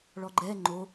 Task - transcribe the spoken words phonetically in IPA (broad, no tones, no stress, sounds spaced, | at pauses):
ɭ ɔ ɡ͡ǃ ɛ ŋ͡ǃ o